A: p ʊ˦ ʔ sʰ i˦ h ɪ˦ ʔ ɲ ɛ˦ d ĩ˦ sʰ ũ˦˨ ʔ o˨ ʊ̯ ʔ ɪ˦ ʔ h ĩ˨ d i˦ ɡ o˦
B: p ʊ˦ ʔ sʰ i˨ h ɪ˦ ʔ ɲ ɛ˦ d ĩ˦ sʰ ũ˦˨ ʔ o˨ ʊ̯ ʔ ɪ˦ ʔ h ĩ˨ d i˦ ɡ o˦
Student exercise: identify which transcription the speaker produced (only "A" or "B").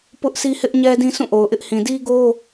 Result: A